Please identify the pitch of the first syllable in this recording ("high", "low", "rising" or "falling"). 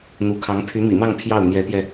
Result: rising